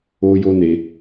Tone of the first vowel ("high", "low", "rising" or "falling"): high